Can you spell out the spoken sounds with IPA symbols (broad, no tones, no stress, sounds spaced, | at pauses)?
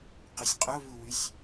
q y sʲ qʼ o β u w y sʲ